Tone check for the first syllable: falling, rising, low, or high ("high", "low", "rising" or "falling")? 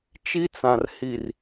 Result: high